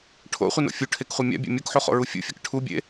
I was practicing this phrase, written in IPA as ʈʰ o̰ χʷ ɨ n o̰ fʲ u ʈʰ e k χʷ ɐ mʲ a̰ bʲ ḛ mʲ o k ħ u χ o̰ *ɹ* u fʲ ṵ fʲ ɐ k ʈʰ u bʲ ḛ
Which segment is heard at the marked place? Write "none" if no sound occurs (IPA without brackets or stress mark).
ɹ